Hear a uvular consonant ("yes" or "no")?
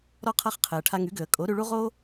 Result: yes